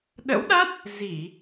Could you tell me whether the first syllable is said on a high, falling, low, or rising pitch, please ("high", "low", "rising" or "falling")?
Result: rising